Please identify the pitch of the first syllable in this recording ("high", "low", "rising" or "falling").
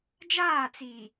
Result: falling